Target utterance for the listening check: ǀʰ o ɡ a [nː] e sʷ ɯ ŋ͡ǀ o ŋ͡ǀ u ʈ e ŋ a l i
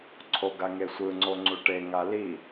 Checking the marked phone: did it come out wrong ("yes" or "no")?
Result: yes